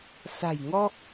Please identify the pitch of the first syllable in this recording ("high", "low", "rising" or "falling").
low